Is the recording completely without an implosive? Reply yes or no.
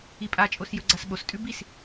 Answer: no